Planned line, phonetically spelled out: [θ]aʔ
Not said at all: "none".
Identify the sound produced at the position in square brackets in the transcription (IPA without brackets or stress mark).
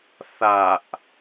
θ